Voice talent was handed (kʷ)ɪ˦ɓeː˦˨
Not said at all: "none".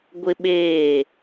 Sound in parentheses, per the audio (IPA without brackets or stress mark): ɡʷ